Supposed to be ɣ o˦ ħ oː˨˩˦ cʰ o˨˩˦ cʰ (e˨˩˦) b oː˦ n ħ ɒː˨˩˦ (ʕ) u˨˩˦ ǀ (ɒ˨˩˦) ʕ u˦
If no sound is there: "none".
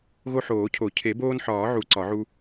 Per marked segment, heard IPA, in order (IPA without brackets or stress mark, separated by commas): e˨˩˦, ʕ, ɒ˨˩˦